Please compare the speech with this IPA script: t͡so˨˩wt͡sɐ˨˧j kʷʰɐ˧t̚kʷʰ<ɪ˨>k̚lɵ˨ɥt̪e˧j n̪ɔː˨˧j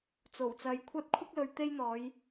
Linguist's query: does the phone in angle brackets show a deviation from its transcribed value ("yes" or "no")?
yes